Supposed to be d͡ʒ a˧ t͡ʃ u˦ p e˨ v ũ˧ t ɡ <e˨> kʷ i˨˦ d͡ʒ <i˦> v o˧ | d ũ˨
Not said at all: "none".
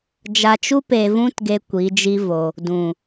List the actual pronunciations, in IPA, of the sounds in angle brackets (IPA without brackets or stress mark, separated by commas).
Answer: e˦, i˦